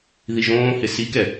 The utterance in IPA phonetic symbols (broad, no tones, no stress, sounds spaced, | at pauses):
ð i ʒ õː h ɪ s i k ɛ